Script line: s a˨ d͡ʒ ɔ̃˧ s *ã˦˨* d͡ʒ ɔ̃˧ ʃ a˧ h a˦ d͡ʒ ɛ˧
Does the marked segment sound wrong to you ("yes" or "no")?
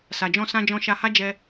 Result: yes